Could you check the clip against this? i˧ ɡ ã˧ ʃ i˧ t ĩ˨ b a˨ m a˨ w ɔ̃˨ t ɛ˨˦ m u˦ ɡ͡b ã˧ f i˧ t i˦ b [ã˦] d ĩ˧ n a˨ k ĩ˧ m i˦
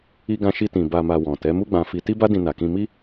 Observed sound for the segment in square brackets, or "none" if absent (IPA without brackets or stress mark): a˦